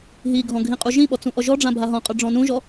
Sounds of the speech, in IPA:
ɦ i ɡʱ ɔ̃ ɡʱ ĩ qʼ u ʒ ĩ ɓ ɔ t͡s ũ ʔ ɔ ʒ ɔ ɖ͡ʐ ã bʱ a ɦ ɔ̃ qʼ ə˞ ɖ͡ʐ ɔ̃ n ũ ʒ ɔ

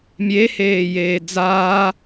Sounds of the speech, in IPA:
mʲ e h eː j eː d͡z aː

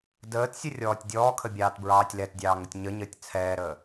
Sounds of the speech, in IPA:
d əː t sʲ ə rʲ ɔː tʲ dʲ ɔː kʰ ə bʲ ɑː t b ɹ ɑː tʲ l ɛ t dʲ ɑː ŋ ə tʲ ɲ ə ɲ əː tʲ t͡sʰ ɛː ɾ əː

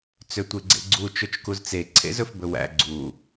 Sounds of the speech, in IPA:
t͡s ø tʷ e ɡ͡ǀ ḛ ɡ͡ǀ u t͡ʃ ɵ t͡ʃ k u z t͡s e ǀʰ ḛ z ɵ f b ɵ w æ̰ ɡ͡ǀ u

